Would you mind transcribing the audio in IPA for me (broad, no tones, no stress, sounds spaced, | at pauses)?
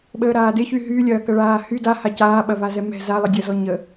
ɓ əː ɾ aː d ɪ ç y ɦ y lʲ ɐː k ɐ ɭ aː h y d a h a c aː ɓ ɐ v a z ɛ m ɛ̤ z a lˠ ɪ dʲ ɐ z ɔ ɲ ə